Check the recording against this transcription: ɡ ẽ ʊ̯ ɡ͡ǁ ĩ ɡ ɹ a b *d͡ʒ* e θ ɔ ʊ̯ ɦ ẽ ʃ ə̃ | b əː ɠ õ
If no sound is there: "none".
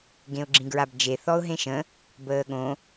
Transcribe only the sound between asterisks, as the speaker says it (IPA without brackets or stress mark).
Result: d͡ʒ